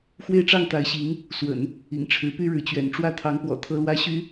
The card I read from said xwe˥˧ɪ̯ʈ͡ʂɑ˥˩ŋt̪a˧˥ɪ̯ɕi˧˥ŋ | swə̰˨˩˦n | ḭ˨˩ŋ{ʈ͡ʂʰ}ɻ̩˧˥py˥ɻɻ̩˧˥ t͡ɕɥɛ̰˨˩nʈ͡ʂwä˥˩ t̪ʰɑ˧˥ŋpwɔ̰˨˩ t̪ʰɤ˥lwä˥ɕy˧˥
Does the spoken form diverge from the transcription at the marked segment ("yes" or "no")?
no